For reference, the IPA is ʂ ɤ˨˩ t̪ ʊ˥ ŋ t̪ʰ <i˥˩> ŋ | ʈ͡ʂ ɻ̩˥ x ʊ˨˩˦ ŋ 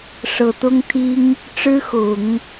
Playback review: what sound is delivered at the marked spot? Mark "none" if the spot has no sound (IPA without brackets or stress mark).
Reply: i˥